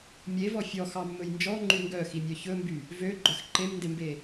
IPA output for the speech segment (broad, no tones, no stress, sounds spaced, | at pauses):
mʲ e v ɔ fʲ ɔ x ɑ mː ɵ j n d͡ʒ ɔ ŋ͡ǃ y ŋ ɡ œ x i mʲ œ ç ɵ m b y | v ø ɡ͡ǃ œ x ǃ e m n d e m b e